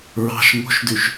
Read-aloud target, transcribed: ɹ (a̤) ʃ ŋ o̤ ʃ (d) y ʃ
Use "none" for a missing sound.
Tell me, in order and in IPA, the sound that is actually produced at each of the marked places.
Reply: ɑ̤, d

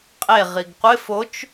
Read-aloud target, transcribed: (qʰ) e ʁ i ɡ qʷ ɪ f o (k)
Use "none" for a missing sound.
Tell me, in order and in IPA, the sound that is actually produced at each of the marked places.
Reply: qʼ, t͡ʃ

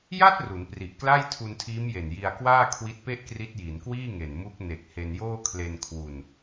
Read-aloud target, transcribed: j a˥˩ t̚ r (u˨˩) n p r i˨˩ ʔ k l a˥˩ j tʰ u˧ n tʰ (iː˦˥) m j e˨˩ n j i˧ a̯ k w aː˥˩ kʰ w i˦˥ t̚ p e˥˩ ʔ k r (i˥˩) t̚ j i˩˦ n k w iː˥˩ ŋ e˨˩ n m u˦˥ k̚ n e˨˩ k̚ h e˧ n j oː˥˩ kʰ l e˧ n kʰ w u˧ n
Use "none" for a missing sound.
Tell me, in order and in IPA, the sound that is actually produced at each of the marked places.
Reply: u˩˦, iː˦˥, i˦˥

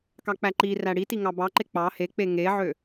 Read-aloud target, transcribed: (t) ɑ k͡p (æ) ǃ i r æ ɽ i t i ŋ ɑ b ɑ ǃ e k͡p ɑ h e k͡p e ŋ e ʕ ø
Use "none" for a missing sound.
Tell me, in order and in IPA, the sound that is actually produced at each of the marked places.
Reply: k, æ

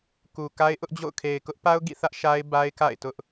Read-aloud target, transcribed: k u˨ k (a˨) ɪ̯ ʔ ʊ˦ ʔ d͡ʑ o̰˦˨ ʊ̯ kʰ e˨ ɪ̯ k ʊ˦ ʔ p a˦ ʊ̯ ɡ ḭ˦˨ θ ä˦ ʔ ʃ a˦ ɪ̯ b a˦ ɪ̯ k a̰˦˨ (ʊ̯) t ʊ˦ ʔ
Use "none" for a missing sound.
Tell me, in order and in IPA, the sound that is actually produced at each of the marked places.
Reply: a˦, ɪ̯

